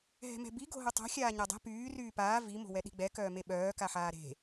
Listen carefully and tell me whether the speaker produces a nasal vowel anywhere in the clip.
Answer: no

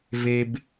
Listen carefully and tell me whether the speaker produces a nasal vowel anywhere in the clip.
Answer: no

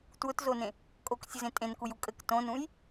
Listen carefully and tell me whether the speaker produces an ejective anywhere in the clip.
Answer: yes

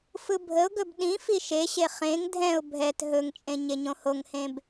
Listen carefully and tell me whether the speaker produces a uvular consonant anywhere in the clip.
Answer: yes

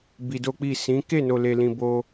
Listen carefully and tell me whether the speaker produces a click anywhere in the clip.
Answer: no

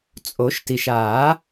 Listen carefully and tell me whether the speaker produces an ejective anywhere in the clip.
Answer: yes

